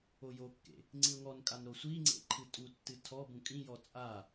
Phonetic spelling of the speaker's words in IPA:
o j o kː ḛ | ŋ͡ǀ ĩ ʊ̯ ŋ ɔ n kʼ a n ɾ o sʷ i ŋ͡ǀ ḛ ǃʰ ɨ tʼ u tː ɨ tʰ ɔ b ũ kʼ ĩ j ɔ t͡sʼ a

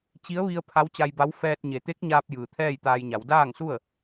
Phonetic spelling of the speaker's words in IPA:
t͡ɕ i˧˥ ə̯ ʋ i˧ ə̯ pʰ a˧˥ w t͡ɕ a˧ j b a˧˥ w f ɛː˧ t̚ ɲ e˩˧ t̪ e˧˥ k̚ ɲ aː˧ p̚ j ɯː˩ t̪ʰ ɛː˥˨ j t̪ aː˧ j ɲ a˩˧ w d aː˥˨ ŋ s u˥˨ ə̯

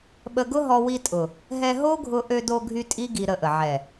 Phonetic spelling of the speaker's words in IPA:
ɓ ə˧ ɡ ʊ˦ ɦ ɔ˧ w i˧ tʼ ʊ˨ | ɦ ɛ˧ ɦ o˦ ɡʱ ʊ˧ ʔ ø˧ d o˧ ɡʱ y˧ tʼ i˦ ɡ i˧ ɾ ə˧ ʔ ə˨ ʕ ɛ˨

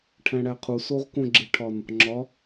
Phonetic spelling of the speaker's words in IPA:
ʈʰ æ̃ ɽ æ qʰ u s o ʁ k õ ɡ͡ǁ e ʈʰ ɒ n | ŋ͡ǁ ɒ

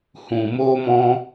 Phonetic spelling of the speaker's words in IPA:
h ũ˧ m o˦ m ɔ̃˦

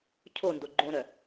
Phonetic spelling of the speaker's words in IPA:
cʰ o n d o ɡ͡ǃ õ ɾ œ

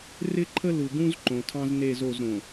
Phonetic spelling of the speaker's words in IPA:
r ɪ˦ ǃʰ ə˦ l u˨ ɡ ũ˦ z ǃ õ˨ tʰ ɑ̃˦ z n e˦˨ z o˦˨ z ɾ õ˨

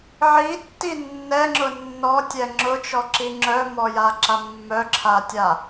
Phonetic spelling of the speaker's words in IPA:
ʕ i tː i nː ɛ ŋ͡ǁ ʊ nː ɔ tʲ ɛ ŋ͡ǁ ʊ t͡ʃ ɔ ǁ i ŋ͡ǁ œ m ɔ j a ǁ a mː œ ǁʰ a tʲ a

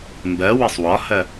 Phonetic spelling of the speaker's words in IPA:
m b ɜ w ɘ sˤ w ɒ h ɜ

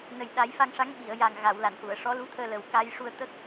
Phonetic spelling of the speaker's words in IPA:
n ə˨˩ j ɗ a˨˩˦ j f a˧ ŋ ʂ a˧˥ ŋ ɓ i˨˩˨ ə̯ j a˨˩ ŋ ɣ a˨˩˨ w l a˨˩˨ n h u˨˩˨ ə̯ ʂ ɔ˧˥ l u˧˥ t̪ʰ əː˧ l ə˨˩ w k a˧ j ʂ u˧ ə̯ t̪ ə˦˥ k̚

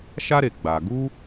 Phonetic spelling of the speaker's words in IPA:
ʃ a˦ ɾ e˨ ɡ͡b a˨ ɡ u˦

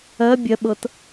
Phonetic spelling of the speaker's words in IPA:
ɜ bʲ ɜ ɓ ɤ t

